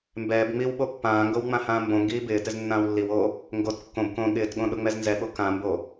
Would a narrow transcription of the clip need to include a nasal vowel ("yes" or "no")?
yes